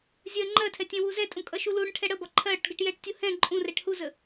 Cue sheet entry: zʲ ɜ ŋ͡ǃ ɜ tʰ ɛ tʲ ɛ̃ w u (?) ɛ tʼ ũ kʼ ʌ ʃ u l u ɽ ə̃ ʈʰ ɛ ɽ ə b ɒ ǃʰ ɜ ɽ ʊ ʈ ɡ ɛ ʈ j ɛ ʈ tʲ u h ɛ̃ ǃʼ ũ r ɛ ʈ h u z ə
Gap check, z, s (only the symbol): z